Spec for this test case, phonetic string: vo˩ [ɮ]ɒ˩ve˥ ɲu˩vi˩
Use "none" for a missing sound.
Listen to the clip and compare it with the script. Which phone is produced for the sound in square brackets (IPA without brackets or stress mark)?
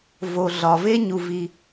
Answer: ɮ